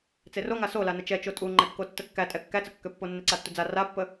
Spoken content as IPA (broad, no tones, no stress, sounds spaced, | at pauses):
t͡s e r o ŋ a s o l a n ə t͡ʃ ɛ t͡ʃ o tʼ u ŋ͡ǃ ɛ kː o tː ə kː æ tʼ ɛ kː æ t͡s ə kː ø pː o nː e ǀ a tː u d͡z a r a pː ə